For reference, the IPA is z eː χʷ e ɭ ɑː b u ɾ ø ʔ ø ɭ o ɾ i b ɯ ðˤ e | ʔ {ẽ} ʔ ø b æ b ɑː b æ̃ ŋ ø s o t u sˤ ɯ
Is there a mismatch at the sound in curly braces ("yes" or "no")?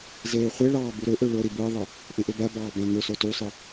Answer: no